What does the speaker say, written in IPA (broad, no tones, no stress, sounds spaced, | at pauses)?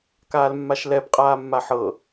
k aː l mː a ʃ l ɛ b qʼ aː mː a ħ ɤ